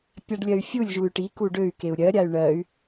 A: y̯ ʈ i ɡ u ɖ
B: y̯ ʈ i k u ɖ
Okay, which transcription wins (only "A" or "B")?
B